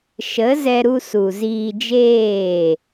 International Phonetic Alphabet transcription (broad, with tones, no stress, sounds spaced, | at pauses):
ʃ ə˨˦ z ɛ˧ ɾ u˧ s u˨ z iː˧ d͡ʒ eː˦˨